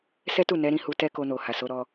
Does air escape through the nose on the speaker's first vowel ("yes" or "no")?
no